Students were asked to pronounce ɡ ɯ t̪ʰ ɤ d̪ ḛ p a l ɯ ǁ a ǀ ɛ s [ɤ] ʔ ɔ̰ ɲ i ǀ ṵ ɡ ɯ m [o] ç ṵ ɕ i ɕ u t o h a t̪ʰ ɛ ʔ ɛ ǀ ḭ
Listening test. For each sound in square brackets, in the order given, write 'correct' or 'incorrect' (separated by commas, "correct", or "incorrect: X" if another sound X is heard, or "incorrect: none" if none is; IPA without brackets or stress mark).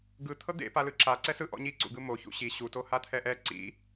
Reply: incorrect: ɯ, correct